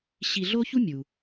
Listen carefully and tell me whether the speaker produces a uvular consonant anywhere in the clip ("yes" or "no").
no